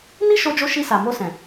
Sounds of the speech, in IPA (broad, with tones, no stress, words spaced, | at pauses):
ni˦ʃo˧d͡ʒo˧ ʃi˧sa˨ mo˧sɛ̃˨